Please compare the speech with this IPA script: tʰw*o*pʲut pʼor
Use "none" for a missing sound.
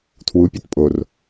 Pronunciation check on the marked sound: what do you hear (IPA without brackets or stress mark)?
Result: u